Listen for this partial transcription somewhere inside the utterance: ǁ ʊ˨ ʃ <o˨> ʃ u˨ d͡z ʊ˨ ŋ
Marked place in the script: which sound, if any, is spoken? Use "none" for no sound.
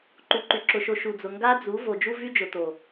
o˨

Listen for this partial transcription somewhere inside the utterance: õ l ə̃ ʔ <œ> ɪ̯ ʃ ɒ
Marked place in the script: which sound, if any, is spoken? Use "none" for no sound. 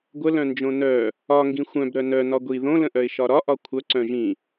œ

